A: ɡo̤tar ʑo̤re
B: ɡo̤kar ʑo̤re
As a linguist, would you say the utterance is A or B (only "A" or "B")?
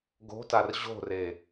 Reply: A